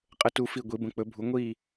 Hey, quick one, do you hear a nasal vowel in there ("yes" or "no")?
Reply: yes